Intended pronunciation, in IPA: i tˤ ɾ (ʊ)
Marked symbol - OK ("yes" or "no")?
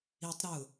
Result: yes